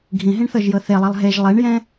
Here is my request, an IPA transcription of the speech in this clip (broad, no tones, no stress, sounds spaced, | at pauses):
ɡʱ ĩ ɦ ĩ ɳ θ ɤ ʒ j ɤ θ e lˠ ɛ lˠ ɦ e ʒ lˠ e ɳ j ɛ̃